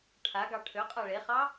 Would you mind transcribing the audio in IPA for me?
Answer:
ʈʰaɡɑ ʈʰøqʼa ɭeχɑ

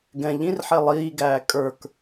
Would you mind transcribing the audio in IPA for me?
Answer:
ɡɛ̃ ʎĩrħɛ lˠiːɡæː kʼə˞k

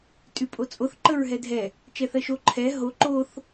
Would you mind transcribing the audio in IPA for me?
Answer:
tʼypʼot͡sʼoθ ǃəɹɦɛdʱɛ | t͡ʃɛθɜʃo ǃʰɛ ɦo ǃoθ

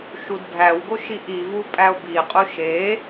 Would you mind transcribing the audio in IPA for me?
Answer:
ʃudbʱæwɡo ʃiʔivu pʼæo̯biqʼu ʃe

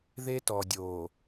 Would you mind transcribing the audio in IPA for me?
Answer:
ðe˦tɔ˨dʲoː˨

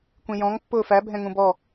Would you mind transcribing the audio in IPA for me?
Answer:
kʷĩjɔ̃ŋ pːʊːfæ bʱɛ̃ŋũbɔ

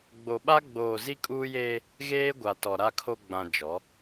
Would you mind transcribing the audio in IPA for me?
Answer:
ɡ͡bo˨ɓa˦ ɡ͡boː˨ zi˦kʼuː˦jeː˦ | ɣeː˦ɡʷa˨tɔ˨ ɾa˨kʰo˨ ɡ͡bã˨ d͡ʒɔ˨˦

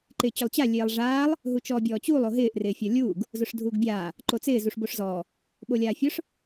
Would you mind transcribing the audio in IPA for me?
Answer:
ǃɪːt͡ɕʊlˠt͡ɕa lʲeːlˠʐaːlˠ | ɦut͡ʃɔːbʲɔːt͡ɕuːlˠ oɦɪːʔ rɪːfʲɔlʲuːɡ | zʊʂdʱuːɡbʲaː | ǃot͡sɪː zuʂboʂzɔː | ɓolʲaːfʲʊʂ

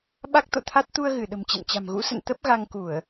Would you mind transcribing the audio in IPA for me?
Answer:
ɓa˦˥k̚t̪o̰˧˨t̪ʰa˦˥t̚ t̪u˧ə̯ɣɨ˧˩ ɗə̤˨˩mt͡ɕɛ̰˧˨nt͡ɕa̤˨˩mɣṵ˧˥ sə̰˧˨n t̪ə˦˥p̚ɣa˧ŋ ku˧˩˨ə̯

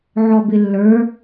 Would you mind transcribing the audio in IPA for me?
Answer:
ʕɔbɪlːə˞

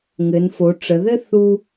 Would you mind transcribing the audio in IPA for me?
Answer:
ŋɘ˩˧nfo˩˧ʈ͡ʂə˩˧ðɘ˥ θu˧

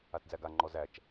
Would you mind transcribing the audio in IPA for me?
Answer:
atd͡zæɡa ŋ͡ǃɔzæt͡ʃ

